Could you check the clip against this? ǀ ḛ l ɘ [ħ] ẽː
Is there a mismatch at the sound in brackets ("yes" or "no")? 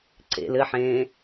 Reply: no